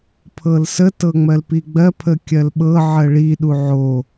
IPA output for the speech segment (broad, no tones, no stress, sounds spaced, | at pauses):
pʰ ɤ l s ə t ɤ ŋ͡m ɜ l p i ɡ͡b ɜ pʰ ə kʲ ɜ l ɓ ɤ ʕ ɜ ɭ i ɗ u ʕ o